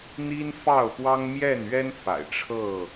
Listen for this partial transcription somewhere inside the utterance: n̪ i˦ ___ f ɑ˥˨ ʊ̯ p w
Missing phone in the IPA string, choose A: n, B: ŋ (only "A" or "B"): A